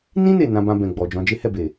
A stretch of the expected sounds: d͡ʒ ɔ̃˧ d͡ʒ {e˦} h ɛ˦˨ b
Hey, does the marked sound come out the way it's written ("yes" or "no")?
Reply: yes